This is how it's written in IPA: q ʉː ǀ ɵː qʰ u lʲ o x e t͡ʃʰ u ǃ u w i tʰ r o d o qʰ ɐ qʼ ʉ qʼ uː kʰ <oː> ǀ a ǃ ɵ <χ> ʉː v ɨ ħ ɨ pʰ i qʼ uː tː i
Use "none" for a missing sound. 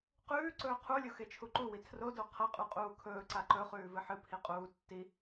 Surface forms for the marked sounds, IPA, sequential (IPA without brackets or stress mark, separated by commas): ɵː, χ